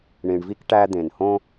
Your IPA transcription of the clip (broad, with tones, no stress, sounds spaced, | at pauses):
ɳ ĩ˨ ɳ v i˦ k ʈ æ˦ d̪ ẽ˨ n h õ˦